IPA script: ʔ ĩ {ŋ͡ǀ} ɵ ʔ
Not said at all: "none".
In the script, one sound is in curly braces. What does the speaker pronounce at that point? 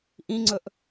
ŋ͡ǀ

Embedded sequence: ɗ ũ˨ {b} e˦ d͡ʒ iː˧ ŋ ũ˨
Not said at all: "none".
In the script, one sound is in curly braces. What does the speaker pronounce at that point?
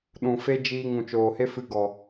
f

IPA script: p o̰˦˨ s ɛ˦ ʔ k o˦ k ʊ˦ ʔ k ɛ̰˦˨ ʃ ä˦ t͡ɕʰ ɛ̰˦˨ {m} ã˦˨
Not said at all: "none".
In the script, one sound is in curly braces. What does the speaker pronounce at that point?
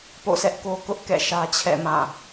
m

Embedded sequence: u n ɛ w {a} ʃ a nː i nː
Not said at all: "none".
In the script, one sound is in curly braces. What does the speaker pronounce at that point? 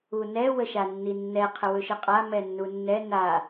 ə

